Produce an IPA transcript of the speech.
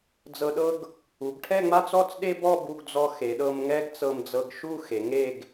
d͡z ɤ˧ ɗ ɤ˥ ɡ | u˩˧ ɡ ʈʰ ɛ˥˧ ŋ͡m a˥˧ t͡s ɔ˥˧ t͡s ɗ e˥ b ɔ˥˧ b u˧ ɡ d͡z ɔ˧ x e˩˧ ɗ ɤ˧ m ŋ ɛ˥ ɡ t͡s ɤ˧ m d͡z ɤ˧ ɡ ʃ u˥˧ x e˩˧ ŋ e˥˧ ɡ

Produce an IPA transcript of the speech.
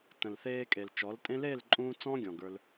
t ə̃˨ l θ eː˧ kʼ e˨ l t͡ʃ ɔ˨˦ l tʼ ẽ˦ l eː˦˨ l ǃʼ ũː˧ t͡s ɔ̃ː˦ ɡʲ ɔ̃˨ ɡ ə˞˧ l

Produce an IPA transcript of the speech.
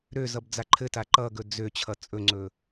ɾ ø z ʌ b d͡z a ǃʰ ɘ t a ǃ ʌ ɡ ɵ d͡z ø t͡ɕʰ ʌ t͡sʼ ɵ ŋ͡ǀ ɵ

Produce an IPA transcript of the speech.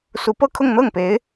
s u˧˥ p ɤ˥ kʰ ʊ˥˧ ŋ n̪ ɤ˥˩ ŋ p e˧˥ ɪ̯

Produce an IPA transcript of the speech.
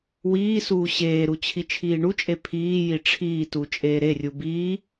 w iː s uː ɕ eː ɾ u t͡ɕʰ i t͡ʃʰ iː ɳ u t͡ʃʼ e pʰ iː j i ʈ͡ʂʰ iː t u t͡ʃʼ eː ɾ e rʲ u b iː

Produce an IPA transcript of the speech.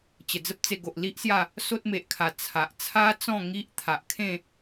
t͡ɕ ə˨˩ d͡z ə˦ p̚ t͡s e˧ ɡ o˨ ʔ l i˦ ʔ s j a˥˧ | s o˦ t̚ m e˨ ʔ kʰ a˨˩ t͡sʰ a˨ ʔ t͡sʰ a˦ t͡s ɔ̃˥˧ ŋ i˦ ʔ t̪ʰ a˨ ʔ kʰ ẽ˥˧

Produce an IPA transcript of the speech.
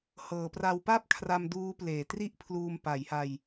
h ɤː˩˦ p r a˧ w p a˥˩ p̚ kʰ r a˧ m d uː˦˥ p l eː˨˩ t r i˥˩ ʔ pʰ l uː˧ m p a˩˦ j h a˧ j

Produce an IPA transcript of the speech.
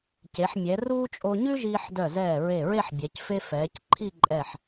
c e˩˧ ħ mʲ ɛ˩˧ r uː˥ t͡ʃʼ o˧ ɲ ʉ˥ ʒ iː˧ ħ d œ˧˩ z ɛː˧˩ ɹ e˧˩ ɹ e˥˧ ħ bʲ ɛ˩˧ c f e˥ f ɛː˩˧ c ǃʰ i˥˧ ǃʼ ɛ˧˩ ħ

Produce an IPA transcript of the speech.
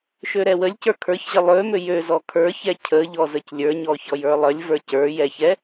ʃ ø ɾ ɛ w ə lʲ c ə˞ kʰ ə˞ ç ʑ ə lˠ ø m ø j ø z ɔ kʰ ə˞ ç ɛ cʰ ə ʎ ɔ z ə c lʲ ə˞ ɲ ɔ ç ɔ j ə˞ lˠ ə lʲ v ə˞ c ə˞ j ɛ ç ɛ

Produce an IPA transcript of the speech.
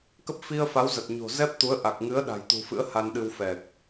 k ə˦˥ p̚ f i˧ ə̯ f a˨˦ w z ə˨˩ t̚ ɲ o̤˨˩ z ɛ˦˥ p̚ t̪ u˨˦ ə̯ ʔ a˨˩ k̚ ŋ ɨ˨˦ ə̯ ɗ a̤˨˩ j t̪ ṳ˨˩ f ɨ̰˧˥ ə̯ h a˧ n ɗ ɨ˧ w f ɛ˨˩ k̚

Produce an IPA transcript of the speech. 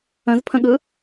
ə̃ z pʰ ə̃ ɠ ɯ

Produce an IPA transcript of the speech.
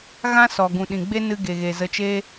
ɣ ã˦ s ɔ˨ ɡ ũ˨ ɗ ĩ˨ ɡ͡b e˦ n ɨ˧ ɡ e˨ ɣ e˨ z ə˨ t͡ʃ eː˧

